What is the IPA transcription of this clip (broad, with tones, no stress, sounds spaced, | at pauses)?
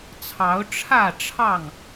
t͡sʰ ɑ˨˦ ʊ̯ ʈ͡ʂʰ ä˥˨ ʈ͡ʂʰ ɑ˥˨ ŋ